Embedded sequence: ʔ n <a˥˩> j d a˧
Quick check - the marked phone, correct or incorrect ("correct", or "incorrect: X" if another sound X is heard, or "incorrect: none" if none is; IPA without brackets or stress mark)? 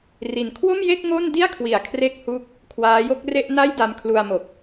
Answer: correct